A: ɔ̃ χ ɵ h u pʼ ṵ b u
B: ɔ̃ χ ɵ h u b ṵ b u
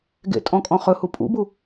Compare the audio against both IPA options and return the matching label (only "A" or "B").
A